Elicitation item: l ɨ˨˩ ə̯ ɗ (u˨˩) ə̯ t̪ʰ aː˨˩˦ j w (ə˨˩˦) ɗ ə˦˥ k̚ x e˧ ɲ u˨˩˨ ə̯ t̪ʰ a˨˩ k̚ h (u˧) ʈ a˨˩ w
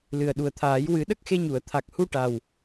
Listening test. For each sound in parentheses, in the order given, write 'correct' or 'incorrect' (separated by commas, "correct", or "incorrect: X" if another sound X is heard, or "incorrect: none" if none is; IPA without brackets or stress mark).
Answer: correct, incorrect: ɨ˨˩˦, correct